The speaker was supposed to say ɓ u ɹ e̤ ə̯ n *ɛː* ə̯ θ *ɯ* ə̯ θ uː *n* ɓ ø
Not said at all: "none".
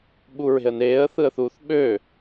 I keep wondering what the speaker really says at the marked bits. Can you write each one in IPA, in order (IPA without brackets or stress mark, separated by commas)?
eː, ɯ, θ